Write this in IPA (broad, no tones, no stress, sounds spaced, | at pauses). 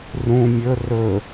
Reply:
r ũ mʲ ɵ r ɵ